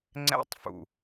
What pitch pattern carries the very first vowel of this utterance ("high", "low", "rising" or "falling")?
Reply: high